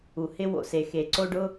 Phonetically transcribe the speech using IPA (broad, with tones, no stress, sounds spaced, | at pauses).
u˩ h ɪ˥˧ w o̰˩ s e˩ x e˩ ǀ o˥˧ ɖ ʊ˥˧